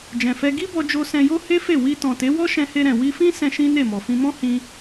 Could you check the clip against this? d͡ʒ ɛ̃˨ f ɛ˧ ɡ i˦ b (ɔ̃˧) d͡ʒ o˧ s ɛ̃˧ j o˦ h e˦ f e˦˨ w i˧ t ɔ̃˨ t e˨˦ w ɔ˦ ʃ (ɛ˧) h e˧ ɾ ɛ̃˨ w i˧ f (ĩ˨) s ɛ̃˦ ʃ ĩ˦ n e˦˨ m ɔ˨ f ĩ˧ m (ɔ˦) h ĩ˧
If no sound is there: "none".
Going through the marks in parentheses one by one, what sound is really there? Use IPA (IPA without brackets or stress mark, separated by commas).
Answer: ɔ˧, ɛ̃˧, ĩ˦, ɔ̃˦